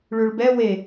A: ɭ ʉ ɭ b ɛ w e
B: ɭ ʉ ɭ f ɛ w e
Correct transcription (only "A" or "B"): A